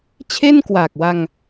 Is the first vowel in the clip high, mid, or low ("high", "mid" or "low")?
mid